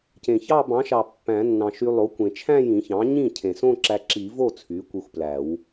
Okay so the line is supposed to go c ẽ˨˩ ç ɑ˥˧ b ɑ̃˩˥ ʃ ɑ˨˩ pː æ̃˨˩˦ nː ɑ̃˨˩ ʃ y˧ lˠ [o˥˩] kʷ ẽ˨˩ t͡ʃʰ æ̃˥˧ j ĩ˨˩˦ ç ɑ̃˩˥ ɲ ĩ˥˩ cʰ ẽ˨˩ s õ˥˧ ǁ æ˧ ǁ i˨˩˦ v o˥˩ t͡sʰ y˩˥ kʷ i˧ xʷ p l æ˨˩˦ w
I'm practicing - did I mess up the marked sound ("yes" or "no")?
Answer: yes